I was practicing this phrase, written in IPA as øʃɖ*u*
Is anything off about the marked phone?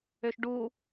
no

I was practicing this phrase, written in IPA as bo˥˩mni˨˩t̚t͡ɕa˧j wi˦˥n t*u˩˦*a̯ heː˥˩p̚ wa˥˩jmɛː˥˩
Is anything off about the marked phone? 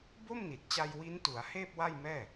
no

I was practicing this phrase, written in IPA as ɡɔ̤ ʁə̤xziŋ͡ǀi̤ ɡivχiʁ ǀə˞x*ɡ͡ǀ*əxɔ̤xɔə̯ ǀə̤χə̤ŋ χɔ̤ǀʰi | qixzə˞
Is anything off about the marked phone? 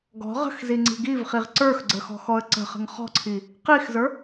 no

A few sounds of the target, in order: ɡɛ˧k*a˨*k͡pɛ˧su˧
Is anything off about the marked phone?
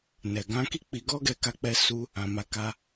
yes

